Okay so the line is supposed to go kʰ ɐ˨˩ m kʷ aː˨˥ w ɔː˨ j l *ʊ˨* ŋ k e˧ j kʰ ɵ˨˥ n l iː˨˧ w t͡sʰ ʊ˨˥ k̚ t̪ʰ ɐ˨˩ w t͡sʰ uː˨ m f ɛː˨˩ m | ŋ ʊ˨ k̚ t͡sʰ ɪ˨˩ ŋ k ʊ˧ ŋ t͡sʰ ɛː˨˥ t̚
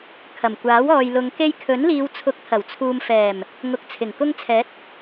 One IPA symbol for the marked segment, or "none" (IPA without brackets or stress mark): ʊ˨˧